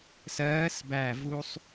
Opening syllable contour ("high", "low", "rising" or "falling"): rising